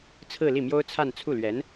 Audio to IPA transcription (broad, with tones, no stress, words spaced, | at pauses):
t͡sʰɹ̩˥˧li˥˩mjo˥ʊ̯t͡sʰa˥˧n t͡sʰu˥˩lɥɛ˧˥n